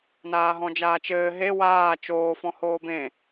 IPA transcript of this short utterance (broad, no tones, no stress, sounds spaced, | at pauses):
n aː ɦ ɔ̃ d͡ʒ aː t͡ʃ ɘː ɦ e w aː t͡ʃ oː f ɔ̃ h oː b ẽ